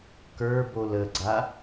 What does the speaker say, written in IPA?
k ə˞ b o l ə ɡ͡ǀ a

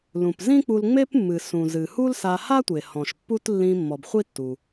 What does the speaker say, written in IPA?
l ũ˩ p z ĩ˥ k͡p u˧ l ŋ͡m e˥ p mː ɨ˩ s ũ˩ z ɨ˩ h u˥ l s a˧ h a˥ tʷ e˩ h ɔ̃˩ ʃ pː u˥ t lː ĩ˧ mː ɔ˩ b χʷ i˥ tː u˩

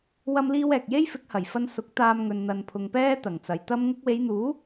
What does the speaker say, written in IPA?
w ɐ˥ m l iː˥ w ɛː˨ k̚ j e˥ j f ɪ˨˥ k̚ h ɐ˨˩ j f ɐ˧ n s ʊ˨˥ k̚ t̪ aː˧ m ŋ ɵ˨ n n̪ ɐ˨ n pʰ ʊ˨ ŋ p ɛː˥ t̪ ɐ˨˩ ŋ t͡s ɐ˨ j t̪ ɐ˥ m ŋ ʊ˧ k̚ w e˨˧ j n̪ uː˨˥

